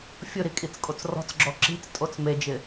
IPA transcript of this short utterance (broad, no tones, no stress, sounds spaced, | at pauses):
fʲ ʊ ɾ i kʼ i t͡s kʼ o t͡s r ɔ̤ t͡s ɡ͡ǁ ɔ ǁ i̤ t͡s tʼ o t͡s m e d͡ʒ ɪ